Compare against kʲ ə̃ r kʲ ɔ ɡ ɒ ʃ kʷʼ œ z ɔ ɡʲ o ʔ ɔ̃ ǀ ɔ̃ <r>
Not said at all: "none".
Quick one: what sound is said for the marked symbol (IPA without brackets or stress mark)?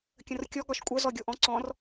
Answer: r